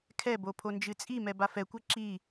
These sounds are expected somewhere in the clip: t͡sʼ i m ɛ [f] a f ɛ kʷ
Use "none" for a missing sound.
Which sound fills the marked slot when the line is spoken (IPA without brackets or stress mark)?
b